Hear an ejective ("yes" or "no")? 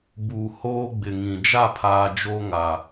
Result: no